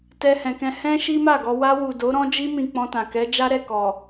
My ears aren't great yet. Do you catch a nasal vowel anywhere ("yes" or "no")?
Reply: yes